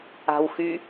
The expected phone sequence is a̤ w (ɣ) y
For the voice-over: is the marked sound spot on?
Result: no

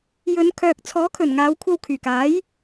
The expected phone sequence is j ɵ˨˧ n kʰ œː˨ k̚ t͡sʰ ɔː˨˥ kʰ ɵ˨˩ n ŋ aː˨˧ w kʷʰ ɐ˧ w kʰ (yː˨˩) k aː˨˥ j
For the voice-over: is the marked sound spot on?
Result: yes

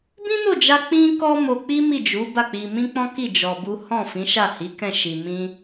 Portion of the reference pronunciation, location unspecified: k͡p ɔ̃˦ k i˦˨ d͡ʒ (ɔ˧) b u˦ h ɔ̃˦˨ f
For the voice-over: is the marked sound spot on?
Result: yes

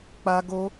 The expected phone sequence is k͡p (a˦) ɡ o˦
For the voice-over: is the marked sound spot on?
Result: yes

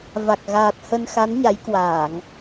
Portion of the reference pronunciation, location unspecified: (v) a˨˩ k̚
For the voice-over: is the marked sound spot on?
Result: yes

